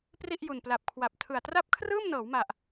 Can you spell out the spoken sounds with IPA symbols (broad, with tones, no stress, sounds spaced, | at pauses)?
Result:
p r i˥˩ ʔ j u˨˩ n p l a˨˩ p̚ kʰ w a˨˩ p̚ tʰ ɯ˨˩ a̯ t r a˥˩ p̚ kʰ r ɯː˥˩ m n ɤː˩˦ w m a˨˩ ʔ